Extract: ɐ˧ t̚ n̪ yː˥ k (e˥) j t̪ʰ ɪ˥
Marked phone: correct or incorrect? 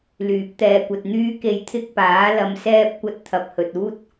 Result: incorrect